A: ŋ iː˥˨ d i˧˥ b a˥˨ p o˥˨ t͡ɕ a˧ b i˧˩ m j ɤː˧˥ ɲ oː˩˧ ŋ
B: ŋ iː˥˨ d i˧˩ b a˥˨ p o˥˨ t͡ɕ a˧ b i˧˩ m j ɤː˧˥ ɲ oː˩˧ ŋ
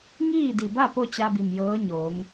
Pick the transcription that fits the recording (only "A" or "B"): B